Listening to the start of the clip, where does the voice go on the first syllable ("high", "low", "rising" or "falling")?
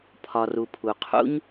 low